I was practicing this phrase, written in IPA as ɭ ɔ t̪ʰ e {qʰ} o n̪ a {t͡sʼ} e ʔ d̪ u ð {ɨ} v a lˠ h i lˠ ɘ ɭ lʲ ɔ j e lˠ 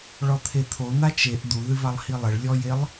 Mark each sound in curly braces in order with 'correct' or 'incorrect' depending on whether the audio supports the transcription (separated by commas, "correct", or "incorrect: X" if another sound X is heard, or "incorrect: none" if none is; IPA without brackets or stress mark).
incorrect: t̪ʰ, incorrect: t͡ʃ, correct